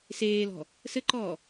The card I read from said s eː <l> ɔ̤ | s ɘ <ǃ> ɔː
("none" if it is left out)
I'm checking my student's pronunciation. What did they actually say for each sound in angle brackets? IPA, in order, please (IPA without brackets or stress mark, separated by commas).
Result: l, ǃ